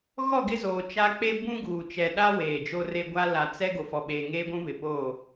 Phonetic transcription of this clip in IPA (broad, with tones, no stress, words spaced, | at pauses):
ɣɔ˦˨ɡɪ˦zoː˨ t͡ʃa˦ k͡pe˦ bũ˦ɡuː˨ t͡ʃɛ˨ɗa˦ weː˨d͡ʒo˦re˦ ɡʷa˦ la˨t͡sɛ˦ ɡo˨fɔ˨ɓeː˨ŋeː˦ ɡʷũ˦βɪ˨po˦˨